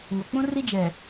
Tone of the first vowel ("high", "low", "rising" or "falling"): low